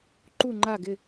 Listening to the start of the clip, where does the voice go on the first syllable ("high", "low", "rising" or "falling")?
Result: falling